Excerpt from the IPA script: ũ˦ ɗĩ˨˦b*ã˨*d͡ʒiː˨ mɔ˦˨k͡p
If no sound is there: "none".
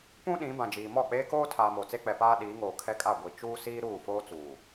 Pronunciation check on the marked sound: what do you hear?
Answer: ã˨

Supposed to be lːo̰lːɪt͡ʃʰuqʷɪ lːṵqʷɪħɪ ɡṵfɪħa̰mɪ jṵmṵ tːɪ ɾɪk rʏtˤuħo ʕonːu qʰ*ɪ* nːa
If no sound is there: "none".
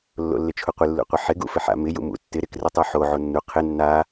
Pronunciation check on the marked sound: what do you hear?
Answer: ɪ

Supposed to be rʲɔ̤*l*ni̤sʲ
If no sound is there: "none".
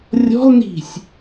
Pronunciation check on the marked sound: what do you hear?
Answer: l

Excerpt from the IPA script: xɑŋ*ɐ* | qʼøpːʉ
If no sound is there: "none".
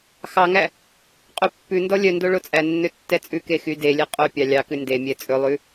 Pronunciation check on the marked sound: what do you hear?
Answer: æ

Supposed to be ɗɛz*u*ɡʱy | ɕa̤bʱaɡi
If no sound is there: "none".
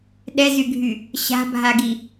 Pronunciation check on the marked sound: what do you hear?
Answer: y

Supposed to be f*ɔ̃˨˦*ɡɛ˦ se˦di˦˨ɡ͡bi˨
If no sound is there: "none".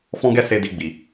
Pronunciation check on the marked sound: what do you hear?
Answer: ɔ̃˦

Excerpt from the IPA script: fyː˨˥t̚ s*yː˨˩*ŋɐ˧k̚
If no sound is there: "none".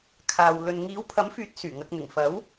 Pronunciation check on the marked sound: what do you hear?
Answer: yː˨˩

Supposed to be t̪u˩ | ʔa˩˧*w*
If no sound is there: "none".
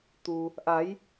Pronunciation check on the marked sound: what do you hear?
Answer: j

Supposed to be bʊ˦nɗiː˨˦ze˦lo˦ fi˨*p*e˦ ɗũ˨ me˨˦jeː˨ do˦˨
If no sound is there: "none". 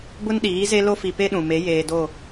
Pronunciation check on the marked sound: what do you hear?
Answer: p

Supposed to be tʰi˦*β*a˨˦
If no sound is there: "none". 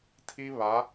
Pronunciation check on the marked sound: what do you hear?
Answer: β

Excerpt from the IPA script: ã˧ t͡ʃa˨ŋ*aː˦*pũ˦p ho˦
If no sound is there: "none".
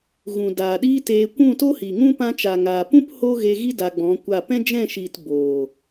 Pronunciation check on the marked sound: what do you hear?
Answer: aː˨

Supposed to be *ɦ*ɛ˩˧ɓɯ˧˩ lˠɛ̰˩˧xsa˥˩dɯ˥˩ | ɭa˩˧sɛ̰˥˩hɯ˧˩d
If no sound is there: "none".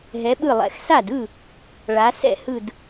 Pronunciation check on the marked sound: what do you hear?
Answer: ɦ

